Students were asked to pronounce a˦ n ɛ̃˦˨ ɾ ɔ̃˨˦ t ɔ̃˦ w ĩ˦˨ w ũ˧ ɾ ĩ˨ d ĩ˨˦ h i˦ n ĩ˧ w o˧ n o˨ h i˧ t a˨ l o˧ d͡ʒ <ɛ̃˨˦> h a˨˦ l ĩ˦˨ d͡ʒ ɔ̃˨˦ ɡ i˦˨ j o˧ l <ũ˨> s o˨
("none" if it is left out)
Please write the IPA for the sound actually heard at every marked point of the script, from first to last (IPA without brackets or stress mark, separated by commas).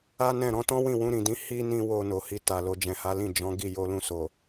ɛ̃˨, ũ˧